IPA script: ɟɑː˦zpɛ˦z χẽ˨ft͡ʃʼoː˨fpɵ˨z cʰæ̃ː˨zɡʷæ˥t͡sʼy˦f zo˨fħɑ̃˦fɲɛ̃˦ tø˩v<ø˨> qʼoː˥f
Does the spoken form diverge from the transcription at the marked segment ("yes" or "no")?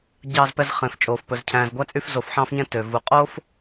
yes